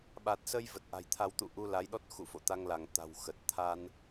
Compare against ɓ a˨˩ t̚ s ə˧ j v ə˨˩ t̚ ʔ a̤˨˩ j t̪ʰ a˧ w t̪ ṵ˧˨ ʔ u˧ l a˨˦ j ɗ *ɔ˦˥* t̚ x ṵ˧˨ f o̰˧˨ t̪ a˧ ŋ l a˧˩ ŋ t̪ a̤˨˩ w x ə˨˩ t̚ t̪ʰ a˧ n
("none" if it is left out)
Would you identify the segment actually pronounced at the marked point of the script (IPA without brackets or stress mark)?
ɔ˦˥